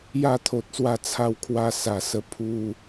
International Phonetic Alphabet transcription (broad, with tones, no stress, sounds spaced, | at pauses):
j a˥˧ t̪ʰ o˨ t̚ s w a˥˧ t͡sʰ a˧ w kʰ w a˧ s a˨˩ s ə˧ pʰ u˧